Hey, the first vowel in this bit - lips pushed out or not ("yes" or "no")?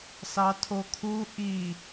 no